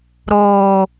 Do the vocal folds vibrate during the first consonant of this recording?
yes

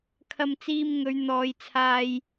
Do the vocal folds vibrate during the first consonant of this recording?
no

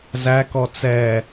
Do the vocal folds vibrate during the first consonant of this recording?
yes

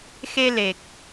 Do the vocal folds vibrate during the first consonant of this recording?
no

